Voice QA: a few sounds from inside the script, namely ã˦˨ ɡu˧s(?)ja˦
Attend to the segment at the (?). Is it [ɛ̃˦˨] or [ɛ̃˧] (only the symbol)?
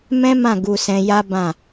ɛ̃˧